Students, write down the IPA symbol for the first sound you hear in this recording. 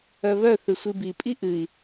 œ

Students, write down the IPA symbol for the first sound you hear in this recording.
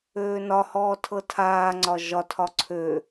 øː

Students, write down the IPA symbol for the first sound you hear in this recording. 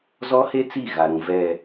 z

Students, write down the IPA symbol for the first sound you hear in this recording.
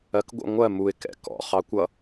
ɜ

